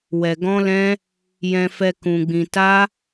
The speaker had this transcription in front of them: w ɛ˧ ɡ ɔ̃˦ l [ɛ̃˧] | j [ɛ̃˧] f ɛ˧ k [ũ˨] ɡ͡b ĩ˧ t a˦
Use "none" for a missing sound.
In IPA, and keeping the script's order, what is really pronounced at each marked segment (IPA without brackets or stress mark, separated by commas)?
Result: ɛ̃˦, ɛ̃˧, ũ˧